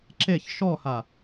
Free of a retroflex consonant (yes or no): yes